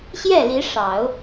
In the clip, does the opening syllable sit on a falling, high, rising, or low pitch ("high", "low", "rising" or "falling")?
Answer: falling